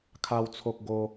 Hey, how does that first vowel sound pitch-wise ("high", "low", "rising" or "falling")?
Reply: high